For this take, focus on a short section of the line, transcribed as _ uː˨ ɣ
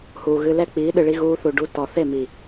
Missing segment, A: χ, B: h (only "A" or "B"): B